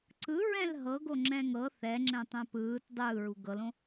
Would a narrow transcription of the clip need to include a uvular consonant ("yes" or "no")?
no